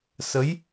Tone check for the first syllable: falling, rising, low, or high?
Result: rising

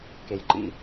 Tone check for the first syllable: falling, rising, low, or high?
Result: low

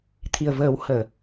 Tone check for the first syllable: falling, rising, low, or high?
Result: low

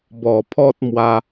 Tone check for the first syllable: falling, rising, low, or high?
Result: low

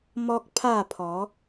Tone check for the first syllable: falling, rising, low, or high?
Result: high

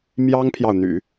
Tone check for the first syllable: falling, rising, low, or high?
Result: high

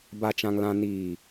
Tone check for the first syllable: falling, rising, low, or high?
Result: low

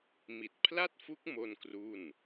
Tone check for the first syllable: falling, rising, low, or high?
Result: low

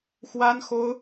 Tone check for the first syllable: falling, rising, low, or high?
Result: high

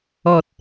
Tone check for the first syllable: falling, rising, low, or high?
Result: low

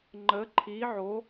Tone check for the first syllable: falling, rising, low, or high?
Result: rising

